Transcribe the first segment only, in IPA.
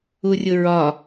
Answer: u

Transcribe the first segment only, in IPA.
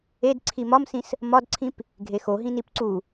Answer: e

